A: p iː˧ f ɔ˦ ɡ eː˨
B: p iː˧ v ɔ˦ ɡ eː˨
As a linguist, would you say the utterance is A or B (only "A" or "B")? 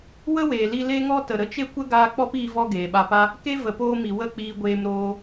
B